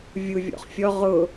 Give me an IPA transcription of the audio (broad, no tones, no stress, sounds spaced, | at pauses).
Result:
vʲ u vʲ ɔ̰ χ fʲ ɔ ʁ ʊ